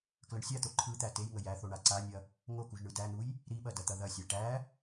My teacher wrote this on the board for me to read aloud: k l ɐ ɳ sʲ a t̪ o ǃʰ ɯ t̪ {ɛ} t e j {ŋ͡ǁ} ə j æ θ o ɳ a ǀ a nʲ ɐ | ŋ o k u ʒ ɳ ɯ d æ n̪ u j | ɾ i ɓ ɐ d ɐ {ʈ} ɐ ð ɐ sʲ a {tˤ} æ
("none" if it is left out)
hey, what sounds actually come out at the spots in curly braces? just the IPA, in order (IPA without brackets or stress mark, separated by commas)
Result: æ, ŋ, t̪, ʈ